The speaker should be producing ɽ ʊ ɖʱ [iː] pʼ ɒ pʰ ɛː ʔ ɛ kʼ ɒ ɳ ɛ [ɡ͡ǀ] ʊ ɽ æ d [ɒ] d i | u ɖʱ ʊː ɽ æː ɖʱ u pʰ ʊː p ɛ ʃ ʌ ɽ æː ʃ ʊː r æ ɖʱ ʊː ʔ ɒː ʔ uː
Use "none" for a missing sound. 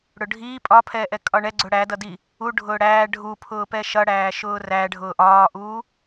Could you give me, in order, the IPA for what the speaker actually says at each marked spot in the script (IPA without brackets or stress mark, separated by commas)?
iː, ɡ͡ǀ, ʌ